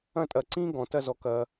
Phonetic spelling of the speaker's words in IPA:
ɐ̃˥˧ tʼ ɐ˧˩ ǀ ĩ˥ ɡ ɔ̃˩˧ t ɐ˥˧ z ɔ˧ k ɐ˧

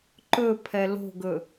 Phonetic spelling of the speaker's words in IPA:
ǃ ɵ pʰ ɛ l o̤ ɡ ɵ

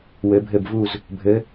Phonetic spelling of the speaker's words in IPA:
w ɘ˧˥ bʱ ɘ˥˧ b v u˥˧ z | bʱ ɘ˧˥

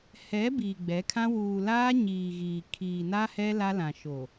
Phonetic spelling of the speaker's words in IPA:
h ɛ˨˦ b iː˨ ɡ͡b ɛ˨˦ kʰ ã˦ w uː˨ l aː˦ ɲ iː˨ ɣ iː˨ kʰ iː˨ n a˦ h ɛ˦ l a˦ l ã˨ ʃ o˨

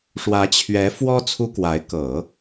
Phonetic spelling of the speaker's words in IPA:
ʂ w ä˧˥ t͡ɕʰ ɥ ɛ˧˥ f w ɔ˥ t͡sʰ u˥ k w a˧˥ ɪ̯ k ɤ˨˩˦

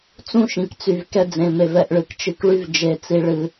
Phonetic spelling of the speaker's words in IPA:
t͡s ũ˦ ʃ ĩ˨ k t͡s y˨ v k ɛ˧ d͡z ẽ˨ m e˨ v ɛ˦˨ ʔ ɭ ɨ˨ k t͡ʃ ɨ˧ k ɭ y˦ v d͡ʒ e˧ t͡s i˧ ɭ ɨ˧

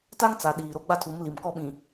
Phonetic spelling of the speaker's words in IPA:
t a˦ ŋ t͡s a˨ ɗ iː˨ ɾ o˦ ɡ͡b a˦ tʰ u˨˦ m l i˨ m k ɔ˦ ɓ ĩ˨

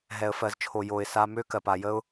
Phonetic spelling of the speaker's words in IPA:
ɦ ɛ˨ ə̯ f ɜ˨ z t͡ʃʰ o˨ j o˨ ɪ̯ s a˧ m ø˦ k ɜ˨ p a˨ j ə˦ ʊ̯

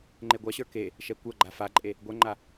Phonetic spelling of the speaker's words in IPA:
ŋ͡ǃ e ɡʷ a ɕ ə˞ k e | ʃ ɛ kʷ ɐ ɡ͡ǃ a f a ǃʼ e | ɡʷ ɛ ŋ͡ǃ a

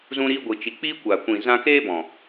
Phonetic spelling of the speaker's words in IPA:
z ũ˧ ɾ iː˧ ɡʷ i˨ t͡ʃ i˨ k͡p i˦ kʷ a˨ kʷ ĩ˨ z ã˧ k eː˦ b ɔ̃˨

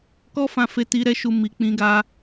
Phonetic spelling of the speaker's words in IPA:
k ɔ˦ f ã˧ f e˧ t i˧ ɾ ɛ˧ ʃ u˧ m i˨ k͡p ĩ˧ ɡ a˧

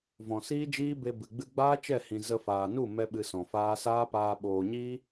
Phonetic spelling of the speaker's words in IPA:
v ɔ̃˨ s iː˦ d͡ʒ iː˦ b e˧ b ɨ˨ ɡ͡b ɨ˧ ɡ͡b aː˦ t͡ʃ ɛ˦˨ h ĩ˨ z ə˧ f aː˨ n u˦˨ m ɛ˦ ɓ ɨ˧ s ɔ̃˨ f aː˦ s aː˦ p aː˧ ɓ oː˨ ɲ iː˦

